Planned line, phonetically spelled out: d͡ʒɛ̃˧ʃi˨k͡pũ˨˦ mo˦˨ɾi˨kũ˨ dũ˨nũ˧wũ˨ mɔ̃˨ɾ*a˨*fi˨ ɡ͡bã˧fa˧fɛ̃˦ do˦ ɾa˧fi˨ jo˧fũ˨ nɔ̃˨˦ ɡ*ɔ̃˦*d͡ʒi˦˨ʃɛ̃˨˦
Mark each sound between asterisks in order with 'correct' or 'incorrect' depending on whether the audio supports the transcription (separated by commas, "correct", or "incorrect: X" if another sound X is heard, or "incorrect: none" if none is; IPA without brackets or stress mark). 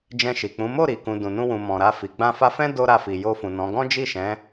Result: incorrect: a˧, correct